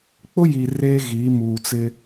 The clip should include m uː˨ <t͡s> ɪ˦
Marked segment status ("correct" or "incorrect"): correct